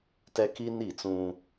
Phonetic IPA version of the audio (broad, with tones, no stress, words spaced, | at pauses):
tɛ˦ki˦ ni˦˨t͡sũ˦